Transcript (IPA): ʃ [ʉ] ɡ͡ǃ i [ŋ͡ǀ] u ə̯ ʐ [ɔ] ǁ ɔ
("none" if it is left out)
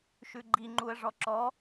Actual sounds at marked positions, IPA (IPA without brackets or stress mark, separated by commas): ʉ, ŋ͡ǃ, ɔ